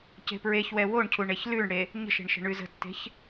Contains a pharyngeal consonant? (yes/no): no